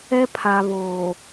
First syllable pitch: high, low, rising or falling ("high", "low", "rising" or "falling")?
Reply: high